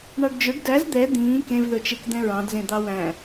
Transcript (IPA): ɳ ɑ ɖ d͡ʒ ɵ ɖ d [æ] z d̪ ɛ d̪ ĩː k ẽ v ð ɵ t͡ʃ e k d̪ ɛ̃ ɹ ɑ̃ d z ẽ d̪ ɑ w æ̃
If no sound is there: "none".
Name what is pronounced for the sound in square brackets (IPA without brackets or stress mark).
æ